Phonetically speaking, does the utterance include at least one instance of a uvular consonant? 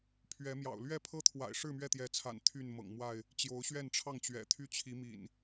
no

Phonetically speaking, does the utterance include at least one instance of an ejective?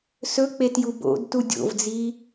no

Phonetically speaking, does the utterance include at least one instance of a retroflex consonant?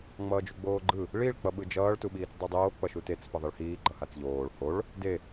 yes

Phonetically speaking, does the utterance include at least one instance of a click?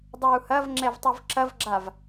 yes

